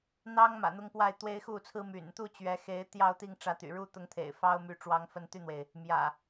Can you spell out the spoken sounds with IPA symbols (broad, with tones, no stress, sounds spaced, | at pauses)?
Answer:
n̪ ɑ˦ ŋ m ä̰˨˩ n̪ ʊ˦ ŋ p w a˥˨ ɪ̯ t̪ w e˦ ɪ̯ x u˥˨ t͡sʰ ɹ̩˦ m y̰˨˩ n t̪ u˥˨ t͡ɕ ɥ ɛ˨˦ x e˨˦ ɪ̯ t̪ j ɑ˥˨ ʊ̯ t̪ i˥˨ ŋ ʈ͡ʂ ä˨˦ t̪ y̰˨˩ ɻ u˥˨ t̪ ʊ˨˦ ŋ t̪ʰ ḛ˨˩ ɪ̯ f ɑ˦ ʊ̯ m y˨˦ ʈ͡ʂ w ɑ˨˦ ŋ f ə˨˦ n t̪ y˧ n̪ w e˩ ɪ̯ | m j ä̰˨˩